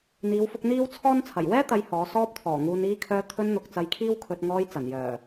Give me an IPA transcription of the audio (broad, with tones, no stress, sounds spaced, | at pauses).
n̪ iː˨˧ w f ʊ˧ k̚ n̪ iː˥ w t͡sʰ ɔː˥ n t͡sʰ ɐ˨˩ j w ɛː˥ t̪ ɐ˧ j h ɔː˨˧ s ɔː˧ p̚ t̪ʰ ɔː˨˩ ŋ uː˨ n iː˧ kʰ œː˧ t̪ʰ ɵ˧ n n̪ ʊ˨ k̚ t͡s ɐ˧ j kʰ iː˥ w kʰ ɵ˧ t̚ ŋ ɔː˧ j t͡s ɐ˨˩ n j œː˨˩